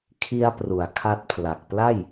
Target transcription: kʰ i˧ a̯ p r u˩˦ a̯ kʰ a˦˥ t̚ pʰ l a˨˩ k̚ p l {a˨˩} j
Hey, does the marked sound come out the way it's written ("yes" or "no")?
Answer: no